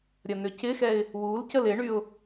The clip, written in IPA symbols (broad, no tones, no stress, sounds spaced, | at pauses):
ɾʲ ɐ n ʏ c ɪ x ɛ ɪ̯ | w u l c ə l ɪ ɳ y ʊ̯